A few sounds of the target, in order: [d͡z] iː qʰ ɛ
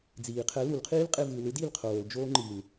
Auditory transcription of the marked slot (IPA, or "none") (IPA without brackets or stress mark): d͡z